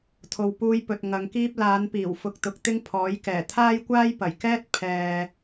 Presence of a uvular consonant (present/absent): absent